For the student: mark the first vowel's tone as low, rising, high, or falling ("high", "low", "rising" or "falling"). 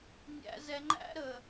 low